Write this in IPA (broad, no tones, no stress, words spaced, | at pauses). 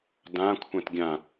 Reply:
dã kʷʰɛ̃tɡʲã